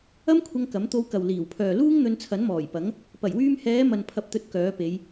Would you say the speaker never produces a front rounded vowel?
no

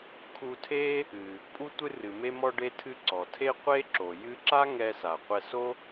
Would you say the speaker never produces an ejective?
no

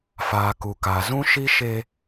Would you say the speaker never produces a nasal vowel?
no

